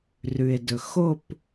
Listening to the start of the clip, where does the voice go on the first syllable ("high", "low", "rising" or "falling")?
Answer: low